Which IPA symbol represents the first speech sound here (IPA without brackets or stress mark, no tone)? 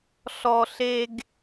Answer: ɬ